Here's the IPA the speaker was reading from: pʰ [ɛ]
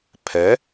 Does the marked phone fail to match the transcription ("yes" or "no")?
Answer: no